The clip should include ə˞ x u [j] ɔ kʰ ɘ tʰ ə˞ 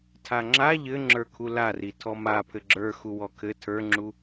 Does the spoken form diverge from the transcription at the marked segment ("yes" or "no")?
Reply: yes